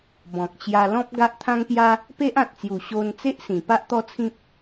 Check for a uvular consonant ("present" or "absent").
absent